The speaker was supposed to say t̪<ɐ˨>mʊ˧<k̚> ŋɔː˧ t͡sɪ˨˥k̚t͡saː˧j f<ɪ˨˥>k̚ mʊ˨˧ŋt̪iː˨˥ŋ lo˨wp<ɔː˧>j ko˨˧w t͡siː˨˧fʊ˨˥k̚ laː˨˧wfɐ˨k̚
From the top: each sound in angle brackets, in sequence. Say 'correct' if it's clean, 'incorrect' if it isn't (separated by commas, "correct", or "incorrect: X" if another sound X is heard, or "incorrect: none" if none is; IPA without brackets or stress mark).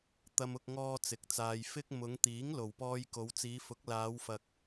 incorrect: ɐ˧, correct, incorrect: ɪ˥, correct